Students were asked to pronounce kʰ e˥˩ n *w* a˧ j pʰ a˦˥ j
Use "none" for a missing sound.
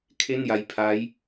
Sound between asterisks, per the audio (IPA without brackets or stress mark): j